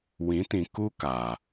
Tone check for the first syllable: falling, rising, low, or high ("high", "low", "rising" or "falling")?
rising